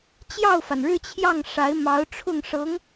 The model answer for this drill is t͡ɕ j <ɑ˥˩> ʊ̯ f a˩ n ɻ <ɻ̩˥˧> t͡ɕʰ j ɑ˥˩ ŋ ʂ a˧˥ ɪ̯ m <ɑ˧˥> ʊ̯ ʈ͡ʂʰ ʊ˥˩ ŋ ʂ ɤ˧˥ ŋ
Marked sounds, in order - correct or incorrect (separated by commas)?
correct, correct, correct